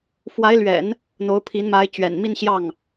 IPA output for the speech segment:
f w a˧˥ ɪ̯ l ɥ ɛ̰˨˩˦ n | n̪ o˧˥ ʊ̯ pʰ i˧˥ n m a˧˥ ɪ̯ t͡ɕ ɥ ɛ̰˨˩ n m i˥˧ n ɕ j ɑ˥˩ ŋ

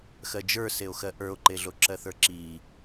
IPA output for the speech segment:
x ɜ d͡ʒ ə˞ s e o̯ x ɜ ʔ ə˞ o̯ ǃ e ɮ o ǁ ɜ θ ə˞ ǁ i

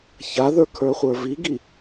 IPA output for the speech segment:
ç a ð ə˞ kʰ ə˞ χʷ ə˞ v i ɡ i

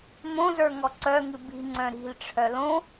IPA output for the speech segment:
m õ z ə˞ ŋ ɔ ǀ œ ŋ ɨ b i̤ ŋ͡ǀ œ̃ ɾ i̤ l ʈ͡ʂʰ œ l õ

